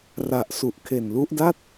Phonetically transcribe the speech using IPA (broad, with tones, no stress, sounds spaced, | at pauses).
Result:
r a˨˩ ʔ s u˨˩ ʔ kʰ e˨˩ n l u˦˥ ʔ d a˥˩ t̚